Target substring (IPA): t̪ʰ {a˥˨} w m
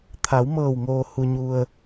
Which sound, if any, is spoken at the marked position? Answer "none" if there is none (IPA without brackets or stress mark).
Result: a˩˧